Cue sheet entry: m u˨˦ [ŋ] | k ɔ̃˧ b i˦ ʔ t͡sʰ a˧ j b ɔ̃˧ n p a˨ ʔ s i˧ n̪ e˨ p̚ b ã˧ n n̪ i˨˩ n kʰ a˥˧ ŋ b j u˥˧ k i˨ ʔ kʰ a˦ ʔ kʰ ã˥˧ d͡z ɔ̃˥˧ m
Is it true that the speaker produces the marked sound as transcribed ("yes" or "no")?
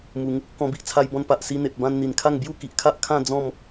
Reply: yes